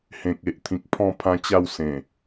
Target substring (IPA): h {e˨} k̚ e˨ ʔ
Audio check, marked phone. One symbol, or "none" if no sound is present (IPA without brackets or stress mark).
ẽ˨